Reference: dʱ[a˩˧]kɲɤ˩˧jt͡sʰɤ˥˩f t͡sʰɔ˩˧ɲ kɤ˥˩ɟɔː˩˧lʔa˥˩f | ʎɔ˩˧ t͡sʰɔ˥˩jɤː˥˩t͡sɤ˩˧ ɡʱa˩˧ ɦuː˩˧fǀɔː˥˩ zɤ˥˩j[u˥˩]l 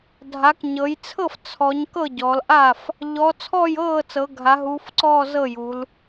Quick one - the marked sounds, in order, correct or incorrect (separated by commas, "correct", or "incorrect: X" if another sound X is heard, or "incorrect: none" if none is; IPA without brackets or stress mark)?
correct, incorrect: u˩˧